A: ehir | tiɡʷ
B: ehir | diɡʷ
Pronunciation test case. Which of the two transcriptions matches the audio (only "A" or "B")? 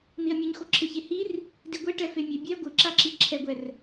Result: B